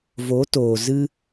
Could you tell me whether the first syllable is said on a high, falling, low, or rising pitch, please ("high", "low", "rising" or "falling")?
rising